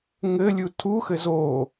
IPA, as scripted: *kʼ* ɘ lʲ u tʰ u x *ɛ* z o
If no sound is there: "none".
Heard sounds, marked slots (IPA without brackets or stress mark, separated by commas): ŋ, ɘ